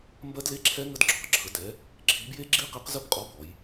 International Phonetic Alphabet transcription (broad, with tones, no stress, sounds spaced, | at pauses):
m b ɜ˦˥ d l e˧˥˧ ǁʰ ɛ˦˥ ŋ ə˦˥ d ɡ͡ǁ ɔ˨˥ q ǁʰ ə˨˥ d ɛ˨˥ | ǁʰ i˨˥ b j e˦˥ ɡ͡ǁ i˦˥ q i˨˥ q z ə˧˥˧ b qʼ ɔ˨˥ b ɔ˨˥ j